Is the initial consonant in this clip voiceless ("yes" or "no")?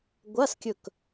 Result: no